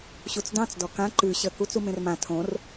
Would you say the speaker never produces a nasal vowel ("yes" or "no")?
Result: no